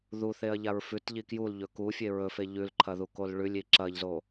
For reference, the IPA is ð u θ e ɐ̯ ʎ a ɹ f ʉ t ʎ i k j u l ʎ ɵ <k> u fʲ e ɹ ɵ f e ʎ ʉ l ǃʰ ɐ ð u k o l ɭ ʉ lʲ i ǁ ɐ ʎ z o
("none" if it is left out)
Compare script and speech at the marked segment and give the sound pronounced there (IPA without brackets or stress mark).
k